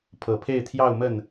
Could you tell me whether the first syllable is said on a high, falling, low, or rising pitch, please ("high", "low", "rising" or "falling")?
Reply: low